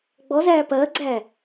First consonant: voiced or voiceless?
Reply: voiced